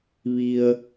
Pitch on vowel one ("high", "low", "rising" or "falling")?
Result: low